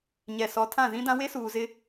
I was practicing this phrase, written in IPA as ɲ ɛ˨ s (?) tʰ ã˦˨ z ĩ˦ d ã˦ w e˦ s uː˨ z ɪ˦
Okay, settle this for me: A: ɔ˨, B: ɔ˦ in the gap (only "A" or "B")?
A